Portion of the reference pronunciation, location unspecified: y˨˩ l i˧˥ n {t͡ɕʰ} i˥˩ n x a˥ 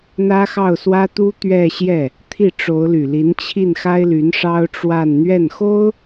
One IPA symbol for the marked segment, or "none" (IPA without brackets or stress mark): t͡ɕʰ